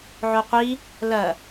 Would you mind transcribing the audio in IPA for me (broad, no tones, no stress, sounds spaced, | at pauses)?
ʕ o qʷ i | l ɐ